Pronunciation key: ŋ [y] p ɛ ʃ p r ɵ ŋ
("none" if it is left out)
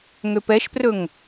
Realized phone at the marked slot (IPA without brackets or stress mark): ø